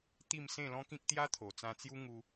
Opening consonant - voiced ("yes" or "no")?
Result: no